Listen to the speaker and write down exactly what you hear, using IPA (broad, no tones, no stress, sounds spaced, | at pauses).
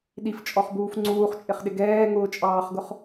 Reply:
ɗ i f t͡ʃʼ ɔ χ b uː f ŋ͡ǀ uː χ t͡ʃʼ ɪ χ ɗ ɪ ɡ ɛː ŋ ʊː t͡ʃʼ ɑː χ ɡ ʊ χ